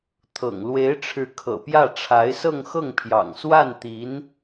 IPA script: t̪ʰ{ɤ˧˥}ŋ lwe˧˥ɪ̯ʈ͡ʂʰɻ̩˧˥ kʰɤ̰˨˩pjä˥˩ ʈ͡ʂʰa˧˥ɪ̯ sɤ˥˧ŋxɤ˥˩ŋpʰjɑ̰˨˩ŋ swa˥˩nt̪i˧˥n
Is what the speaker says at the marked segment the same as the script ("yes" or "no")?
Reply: no